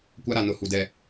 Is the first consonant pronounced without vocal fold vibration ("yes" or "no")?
yes